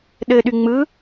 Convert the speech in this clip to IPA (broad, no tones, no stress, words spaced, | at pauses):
ɗɘɗy ŋ͡mɯ